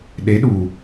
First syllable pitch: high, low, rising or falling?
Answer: rising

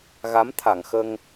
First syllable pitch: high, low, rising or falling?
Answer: rising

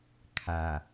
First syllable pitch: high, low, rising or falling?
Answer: low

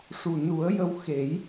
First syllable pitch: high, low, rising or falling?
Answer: low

